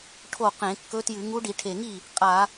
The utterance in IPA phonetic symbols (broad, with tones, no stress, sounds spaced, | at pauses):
ʈʰ o˥˩ q ẽ˧˩˧ kː ɵ˧˥ t j ɨ˧˩˧ ŋ u˧˥ ɖ i˧˩˧ ʈʰ e˨˩ ŋ i˥˩ | qʼ a˧˩˧